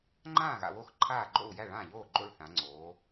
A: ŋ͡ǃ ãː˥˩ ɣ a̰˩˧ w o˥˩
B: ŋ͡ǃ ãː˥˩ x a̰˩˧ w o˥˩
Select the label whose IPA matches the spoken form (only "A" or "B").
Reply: A